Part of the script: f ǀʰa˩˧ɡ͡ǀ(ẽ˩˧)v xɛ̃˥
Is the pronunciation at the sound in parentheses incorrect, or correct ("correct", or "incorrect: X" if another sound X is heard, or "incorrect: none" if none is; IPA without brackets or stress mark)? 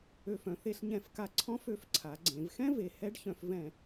correct